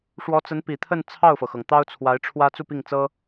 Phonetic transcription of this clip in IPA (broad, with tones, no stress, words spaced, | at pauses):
ʂwɔ˧˥t͡sə˧˥n pi˨˩t̪ʰə˥˧n t͡sʰɑ˥˩ʊ̯fɤ˩xɤ˩ŋ t̪ɑ˥ʊ̯t͡sʰwa˧˥ɪ̯ʈ͡ʂʰwä˥ t͡su˥˧pi˥˩ŋt͡sɤ˥